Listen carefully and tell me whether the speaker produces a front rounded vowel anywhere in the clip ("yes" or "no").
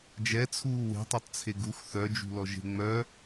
yes